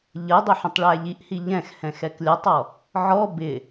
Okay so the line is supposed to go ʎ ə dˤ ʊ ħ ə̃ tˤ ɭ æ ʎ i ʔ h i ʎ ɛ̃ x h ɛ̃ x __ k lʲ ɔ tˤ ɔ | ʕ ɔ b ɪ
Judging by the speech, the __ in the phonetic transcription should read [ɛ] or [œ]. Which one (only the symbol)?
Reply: ɛ